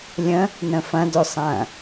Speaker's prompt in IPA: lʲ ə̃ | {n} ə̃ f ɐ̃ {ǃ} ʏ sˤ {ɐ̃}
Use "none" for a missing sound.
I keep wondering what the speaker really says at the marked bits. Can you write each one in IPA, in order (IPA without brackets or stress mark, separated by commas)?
n, d, ɐ̃